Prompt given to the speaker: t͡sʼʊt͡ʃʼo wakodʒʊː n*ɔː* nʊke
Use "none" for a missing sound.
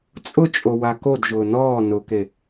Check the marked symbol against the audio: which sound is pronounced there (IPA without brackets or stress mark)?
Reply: ɔː